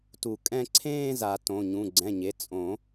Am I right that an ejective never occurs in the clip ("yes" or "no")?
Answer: no